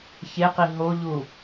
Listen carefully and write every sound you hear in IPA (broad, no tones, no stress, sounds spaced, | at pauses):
ç e q i ɦ o ʎ u